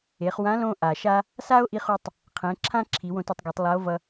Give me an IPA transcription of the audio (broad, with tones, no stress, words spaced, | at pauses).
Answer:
e˩˧χwã˧˥ lõ˧ʔa˩ʃa˧ | sa˥o̯ʔi˧χu˧tˤ | qʰɛ̃˩˧ǁʰã˥ ǁʰi˩˧wõ˧tɛ˧tˤɡe˩˧tˤ lˠa˧˥o̯vʌ˧